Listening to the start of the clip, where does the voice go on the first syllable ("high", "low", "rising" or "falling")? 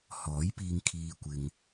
rising